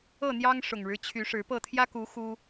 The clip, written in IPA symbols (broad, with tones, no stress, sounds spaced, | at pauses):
ɤ˥˨ n̪ j ɑ˦ ŋ ʂ ʊ˨˩ ŋ ɻ ɻ̩˦ t͡ɕʰ y˨˦ ʂ ɻ̩˨˦ p ɤ˥˨ t̪ʰ j ä˦ k u˨˦ x u˦